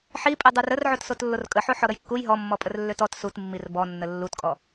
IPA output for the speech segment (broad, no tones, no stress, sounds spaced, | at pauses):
ħ i pʼ i dˤ u r ə r ʕ o t s o t lː o r kʼ ə ħ o ħ ɔ ɾ ə j kː u j ɦ ɔ mː ɔ pʼ ə r lː ø t ɔ t s u t mː i r b ɔ nː ə lː u t kʼ ɔ